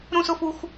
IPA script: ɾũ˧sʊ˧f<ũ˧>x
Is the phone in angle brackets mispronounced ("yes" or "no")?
yes